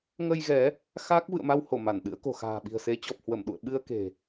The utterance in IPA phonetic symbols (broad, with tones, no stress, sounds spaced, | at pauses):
ŋ ə˧ j ɣ ɛ˨˦ | x a˦˥ k̚ v ɨ̰˧˨ ə̯ m a˧ w h o˧˩ m a˧˩ n ɗ ɨ̰˧˥ ə̯ k o̤˨˩ x a̤ː˨˩ ɓ i̤˨˩ ə̯ s e˨˦ t͡ɕ ɔ˨˩ p̚ h w ə˧˩ m ɗ ṵ˧˨ ə̯ ɓ ɨ˧ ə̯ k e̤˨˩